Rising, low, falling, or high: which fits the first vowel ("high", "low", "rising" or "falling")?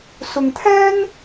low